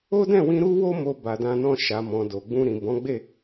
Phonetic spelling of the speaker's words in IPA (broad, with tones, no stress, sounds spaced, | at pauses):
o˦ d ɛ̃˦˨ w ĩ˧ ɾ u˦ w o˦ m o˧ b a˨ d ã˧ n ɔ̃˧ ʃ a˨ m ɔ̃˨ d o˨ ɡ͡b ũ˧ ɾ ĩ˨ b ɔ̃˨˦ ɡ͡b e˦˨